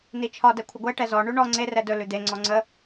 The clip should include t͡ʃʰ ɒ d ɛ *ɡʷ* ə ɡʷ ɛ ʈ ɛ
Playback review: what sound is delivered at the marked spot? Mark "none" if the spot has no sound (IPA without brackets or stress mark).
kʷʰ